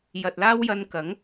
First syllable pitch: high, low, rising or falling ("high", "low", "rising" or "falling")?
low